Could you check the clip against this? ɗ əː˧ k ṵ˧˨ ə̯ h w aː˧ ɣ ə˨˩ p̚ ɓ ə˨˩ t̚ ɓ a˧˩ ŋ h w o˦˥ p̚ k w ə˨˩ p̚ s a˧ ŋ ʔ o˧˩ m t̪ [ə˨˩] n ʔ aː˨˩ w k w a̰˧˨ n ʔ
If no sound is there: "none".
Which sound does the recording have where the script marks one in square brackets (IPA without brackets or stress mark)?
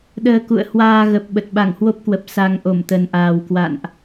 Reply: ə˨˩